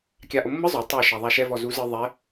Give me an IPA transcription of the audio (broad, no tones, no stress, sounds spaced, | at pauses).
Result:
kʲ a ʔ o mː ɯ zˤ o tˤ o ʃ a ðˤ a ʃ ɛ v ɔ z u z ɯ ðˤ ɛ